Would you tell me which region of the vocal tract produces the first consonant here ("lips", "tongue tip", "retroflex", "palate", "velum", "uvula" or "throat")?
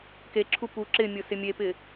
velum